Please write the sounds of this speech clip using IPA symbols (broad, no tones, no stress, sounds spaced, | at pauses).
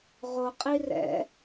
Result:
ʁ o qʼ i r ɛ̰